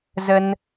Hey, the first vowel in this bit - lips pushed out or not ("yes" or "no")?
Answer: no